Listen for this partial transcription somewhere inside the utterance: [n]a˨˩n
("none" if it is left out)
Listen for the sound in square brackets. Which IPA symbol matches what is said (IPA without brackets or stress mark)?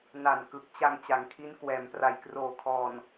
n